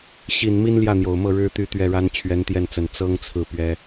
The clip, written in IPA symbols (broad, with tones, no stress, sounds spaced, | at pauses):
ɕ i˨˩ n m i˥ n l j ä˥˩ n̪ j o˨˩ ʊ̯ m ɤ˥˩ ɻ ɻ̩˥ t̪ y˥˩ t̪ ɥ ɛ˥ ɻ a˥ n t͡ɕʰ ɥ ɛ˧˥ n t̪ j ɛ˥˩ n t͡s ə˨˩ n t͡s ɤ˥ ŋ t͡sʰ ɹ̩˥˩ p ɥ ɛ˥